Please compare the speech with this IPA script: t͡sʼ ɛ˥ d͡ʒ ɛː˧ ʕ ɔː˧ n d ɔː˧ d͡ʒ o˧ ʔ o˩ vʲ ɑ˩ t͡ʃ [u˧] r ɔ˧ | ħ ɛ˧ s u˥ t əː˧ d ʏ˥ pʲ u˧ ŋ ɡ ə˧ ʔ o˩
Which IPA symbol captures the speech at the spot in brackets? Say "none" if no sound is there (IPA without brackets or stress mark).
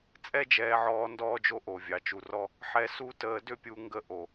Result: u˩